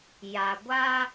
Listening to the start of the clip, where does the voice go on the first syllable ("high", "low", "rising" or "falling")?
low